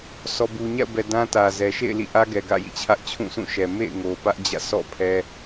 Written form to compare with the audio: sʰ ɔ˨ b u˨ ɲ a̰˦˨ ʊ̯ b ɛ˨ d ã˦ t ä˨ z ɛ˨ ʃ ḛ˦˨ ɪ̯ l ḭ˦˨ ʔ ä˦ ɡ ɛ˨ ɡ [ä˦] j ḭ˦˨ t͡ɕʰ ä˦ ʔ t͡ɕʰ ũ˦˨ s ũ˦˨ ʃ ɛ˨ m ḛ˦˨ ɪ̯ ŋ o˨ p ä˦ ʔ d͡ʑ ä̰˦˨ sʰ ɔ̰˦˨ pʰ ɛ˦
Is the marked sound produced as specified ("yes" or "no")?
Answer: no